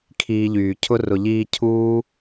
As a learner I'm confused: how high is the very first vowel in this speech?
high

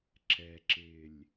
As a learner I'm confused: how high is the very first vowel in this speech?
mid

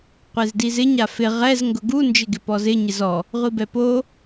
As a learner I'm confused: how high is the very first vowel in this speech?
mid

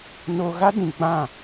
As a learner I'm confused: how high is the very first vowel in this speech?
mid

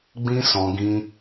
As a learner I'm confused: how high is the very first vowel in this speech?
high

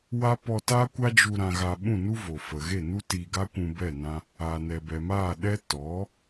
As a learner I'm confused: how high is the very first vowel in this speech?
low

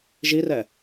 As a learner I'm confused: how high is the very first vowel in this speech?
high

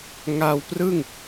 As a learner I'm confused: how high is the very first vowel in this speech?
low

